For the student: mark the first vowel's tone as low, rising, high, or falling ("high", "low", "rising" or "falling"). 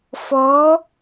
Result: rising